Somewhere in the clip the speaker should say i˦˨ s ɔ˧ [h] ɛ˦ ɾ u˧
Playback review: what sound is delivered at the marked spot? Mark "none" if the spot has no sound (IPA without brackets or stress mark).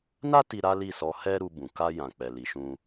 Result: h